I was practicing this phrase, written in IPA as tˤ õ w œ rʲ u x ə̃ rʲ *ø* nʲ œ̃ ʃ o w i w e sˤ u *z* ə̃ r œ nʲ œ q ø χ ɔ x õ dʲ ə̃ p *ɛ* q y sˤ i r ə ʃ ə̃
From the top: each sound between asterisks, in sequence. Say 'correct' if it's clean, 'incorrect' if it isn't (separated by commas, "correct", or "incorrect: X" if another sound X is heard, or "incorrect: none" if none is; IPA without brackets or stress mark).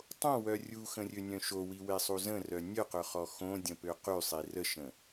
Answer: correct, correct, incorrect: ø